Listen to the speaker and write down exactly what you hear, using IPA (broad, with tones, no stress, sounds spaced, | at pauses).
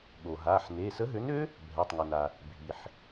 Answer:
ɠ o˩ ɦ a˩˧˩ ħ n e˩˧˩ s ə˨˥ ɦ ø˨˥ n ø˦˥ | bʱ ɛ˩˧˩ tˤ ŋ ə˩ n a˩ | bʱ i˩ ħ